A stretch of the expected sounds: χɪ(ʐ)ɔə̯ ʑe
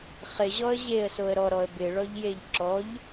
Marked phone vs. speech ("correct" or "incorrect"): incorrect